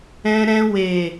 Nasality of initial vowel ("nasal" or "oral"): nasal